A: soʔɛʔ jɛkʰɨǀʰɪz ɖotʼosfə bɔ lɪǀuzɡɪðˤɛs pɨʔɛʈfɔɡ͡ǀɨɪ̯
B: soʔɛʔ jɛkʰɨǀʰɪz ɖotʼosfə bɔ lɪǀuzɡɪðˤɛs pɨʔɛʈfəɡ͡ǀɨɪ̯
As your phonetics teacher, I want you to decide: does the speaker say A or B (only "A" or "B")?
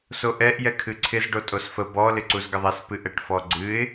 A